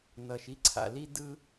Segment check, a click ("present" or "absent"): present